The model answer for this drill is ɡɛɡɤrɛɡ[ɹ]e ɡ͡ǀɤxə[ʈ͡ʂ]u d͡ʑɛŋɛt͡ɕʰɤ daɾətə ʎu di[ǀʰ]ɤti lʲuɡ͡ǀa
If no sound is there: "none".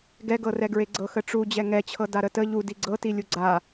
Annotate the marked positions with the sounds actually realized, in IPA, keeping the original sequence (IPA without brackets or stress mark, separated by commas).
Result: ɹ, ʈ͡ʂ, ɡ͡ǀ